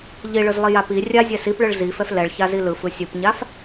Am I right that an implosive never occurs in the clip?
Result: yes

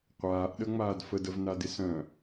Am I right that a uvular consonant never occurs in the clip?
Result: no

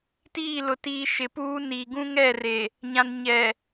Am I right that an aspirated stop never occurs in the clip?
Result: yes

